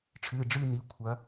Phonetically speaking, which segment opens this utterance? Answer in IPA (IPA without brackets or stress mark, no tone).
ʈ͡ʂʰ